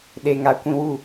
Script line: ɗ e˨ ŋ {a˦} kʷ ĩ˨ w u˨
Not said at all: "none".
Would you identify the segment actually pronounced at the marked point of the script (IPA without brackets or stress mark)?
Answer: a˨